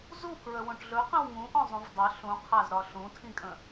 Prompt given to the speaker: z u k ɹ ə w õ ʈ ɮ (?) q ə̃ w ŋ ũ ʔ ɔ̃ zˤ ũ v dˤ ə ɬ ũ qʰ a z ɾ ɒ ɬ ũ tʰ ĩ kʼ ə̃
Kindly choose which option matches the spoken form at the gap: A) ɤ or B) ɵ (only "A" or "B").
B